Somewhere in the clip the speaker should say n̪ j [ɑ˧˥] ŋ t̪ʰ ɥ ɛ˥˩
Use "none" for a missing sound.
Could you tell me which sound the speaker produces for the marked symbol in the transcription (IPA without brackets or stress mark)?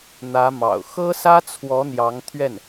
ɑ˧˥